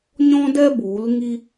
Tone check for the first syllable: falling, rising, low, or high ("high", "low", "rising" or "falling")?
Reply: high